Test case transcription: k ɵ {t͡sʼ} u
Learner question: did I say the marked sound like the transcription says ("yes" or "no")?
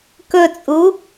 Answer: yes